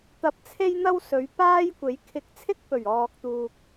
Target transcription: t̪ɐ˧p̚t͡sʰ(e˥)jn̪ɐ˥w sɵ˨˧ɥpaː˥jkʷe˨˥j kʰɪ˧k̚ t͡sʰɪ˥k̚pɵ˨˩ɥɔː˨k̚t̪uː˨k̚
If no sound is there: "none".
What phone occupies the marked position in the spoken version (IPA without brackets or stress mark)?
e˥